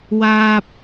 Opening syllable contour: high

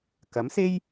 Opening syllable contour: rising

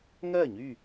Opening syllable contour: falling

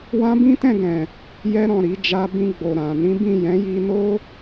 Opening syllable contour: high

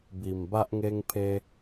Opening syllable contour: low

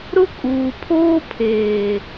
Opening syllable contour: high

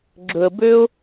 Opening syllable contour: low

